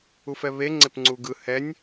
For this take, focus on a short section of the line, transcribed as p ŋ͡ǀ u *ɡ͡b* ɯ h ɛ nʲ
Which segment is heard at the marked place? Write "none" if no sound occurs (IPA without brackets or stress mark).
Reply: ɡ